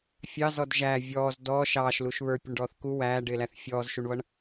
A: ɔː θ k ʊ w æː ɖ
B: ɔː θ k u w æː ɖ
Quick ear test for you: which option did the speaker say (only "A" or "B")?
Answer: B